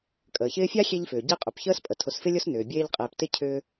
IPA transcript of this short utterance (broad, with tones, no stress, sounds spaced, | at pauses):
kʼ əː˩ ç ɪː˦ fʲ a˥ xʲ e˦ ʎ f ʏː˩ ɟ e˦ qʼ ʏ˩ p ç əː˥ s pʼ ə˩ tʰ ʊ˨ s f ɪ˥ lʲ ʊ˥ s n ʏː˩ bʲ eː˦ ʎ qʼ eː˨ p t ɪ˥ cʰ ʏː˦